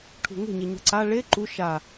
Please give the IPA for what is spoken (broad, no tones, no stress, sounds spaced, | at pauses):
ʈʰ ṳ ŋ e̤ ɲ e ɲ a̤ ǀ a ɭ e ǃ u ʃ a